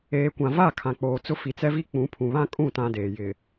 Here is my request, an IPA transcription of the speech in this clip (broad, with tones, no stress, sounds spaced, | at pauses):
eː˨ kʷ ã˨ v a˦˨ kʰ ã˨ k͡p oː˨ t͡s ʊ˦ f i˨ t͡s ɛ˦ v i˦ k͡p ũ˨˦ pʰ ũ˨ β ã˦ kʼ ũ˦˨ t ã˦ d eː˨ j ɪ˨